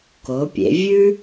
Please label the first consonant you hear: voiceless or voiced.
voiceless